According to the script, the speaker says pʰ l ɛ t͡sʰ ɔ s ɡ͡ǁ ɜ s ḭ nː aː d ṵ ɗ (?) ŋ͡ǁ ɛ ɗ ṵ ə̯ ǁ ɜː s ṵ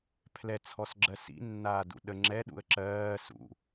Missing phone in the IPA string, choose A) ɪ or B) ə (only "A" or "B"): B